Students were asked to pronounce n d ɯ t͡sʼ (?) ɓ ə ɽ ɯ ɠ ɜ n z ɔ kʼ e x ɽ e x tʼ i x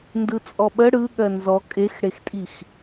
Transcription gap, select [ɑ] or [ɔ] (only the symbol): ɔ